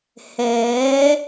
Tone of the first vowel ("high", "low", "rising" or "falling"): rising